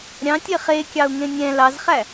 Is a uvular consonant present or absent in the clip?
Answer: present